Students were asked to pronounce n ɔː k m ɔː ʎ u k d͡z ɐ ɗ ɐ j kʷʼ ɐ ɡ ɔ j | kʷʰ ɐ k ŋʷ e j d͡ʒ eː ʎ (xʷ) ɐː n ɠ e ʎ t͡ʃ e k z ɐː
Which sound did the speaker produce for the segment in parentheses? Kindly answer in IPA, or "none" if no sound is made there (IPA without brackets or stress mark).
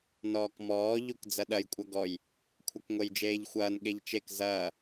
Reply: xʷ